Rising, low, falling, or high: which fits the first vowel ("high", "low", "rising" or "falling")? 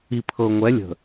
low